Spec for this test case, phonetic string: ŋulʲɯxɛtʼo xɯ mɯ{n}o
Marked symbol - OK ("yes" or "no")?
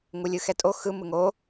no